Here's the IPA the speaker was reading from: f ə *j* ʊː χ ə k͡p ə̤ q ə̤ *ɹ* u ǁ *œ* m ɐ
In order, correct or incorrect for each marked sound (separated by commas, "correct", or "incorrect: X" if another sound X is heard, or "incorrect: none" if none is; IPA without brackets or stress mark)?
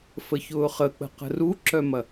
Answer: incorrect: ç, incorrect: r, correct